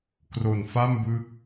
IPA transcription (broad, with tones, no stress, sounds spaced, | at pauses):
k r o˨˩ n f a˥˩ m b ɯ˦˥ k̚